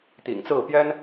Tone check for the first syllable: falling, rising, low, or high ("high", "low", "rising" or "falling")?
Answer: low